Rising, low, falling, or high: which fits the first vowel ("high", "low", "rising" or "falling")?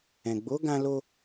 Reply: low